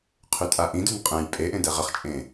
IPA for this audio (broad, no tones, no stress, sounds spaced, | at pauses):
qʰ ʉ tʼ a ʔ ĩ d ʉ n qʼ ɛ̃ j pʼ e ʔ ẽ d ɛ ʁ ə χ t͡ʃʼ ẽ